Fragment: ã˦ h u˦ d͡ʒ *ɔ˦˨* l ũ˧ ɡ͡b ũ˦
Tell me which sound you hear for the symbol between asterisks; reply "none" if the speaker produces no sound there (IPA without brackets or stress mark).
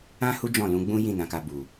ɔ̃˦˨